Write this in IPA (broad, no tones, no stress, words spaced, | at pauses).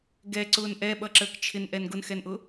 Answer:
ɡɛǀʊːn ʔɛɓʌǁəːk t͡ʃʰɪnʔɛn ɡʊnxɛnʔʊ